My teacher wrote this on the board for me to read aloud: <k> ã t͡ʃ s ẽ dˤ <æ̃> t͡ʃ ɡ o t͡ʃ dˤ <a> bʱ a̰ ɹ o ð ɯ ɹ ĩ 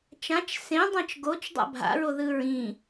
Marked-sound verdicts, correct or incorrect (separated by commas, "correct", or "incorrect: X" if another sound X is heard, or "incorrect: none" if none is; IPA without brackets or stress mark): incorrect: t͡ʃ, incorrect: ɛ̃, incorrect: a̰